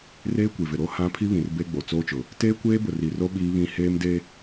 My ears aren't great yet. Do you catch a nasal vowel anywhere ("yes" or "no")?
yes